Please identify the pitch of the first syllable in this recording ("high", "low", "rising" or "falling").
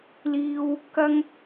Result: high